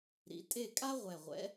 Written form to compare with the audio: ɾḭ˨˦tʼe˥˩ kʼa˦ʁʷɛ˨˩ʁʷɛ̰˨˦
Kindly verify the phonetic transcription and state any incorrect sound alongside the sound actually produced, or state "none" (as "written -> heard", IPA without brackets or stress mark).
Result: none